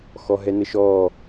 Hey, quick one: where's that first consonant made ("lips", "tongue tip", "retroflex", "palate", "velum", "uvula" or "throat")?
velum